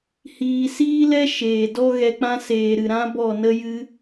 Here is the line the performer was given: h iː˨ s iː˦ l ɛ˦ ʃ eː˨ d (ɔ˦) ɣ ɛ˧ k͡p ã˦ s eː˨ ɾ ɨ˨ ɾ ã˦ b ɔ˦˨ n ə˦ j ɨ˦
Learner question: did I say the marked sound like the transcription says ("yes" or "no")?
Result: yes